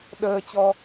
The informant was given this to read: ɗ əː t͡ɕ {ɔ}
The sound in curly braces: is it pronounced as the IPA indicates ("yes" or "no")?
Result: yes